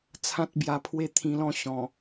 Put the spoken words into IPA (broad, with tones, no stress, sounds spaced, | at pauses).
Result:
t͡sʰ ã˦ t̚ b j a˧ pʰ w e˥˧ t̪ʰ ĩ˧ l ɔ̃˥˧ ɕ ɔ̃˨˩